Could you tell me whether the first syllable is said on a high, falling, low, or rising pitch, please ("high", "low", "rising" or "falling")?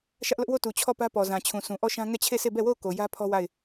high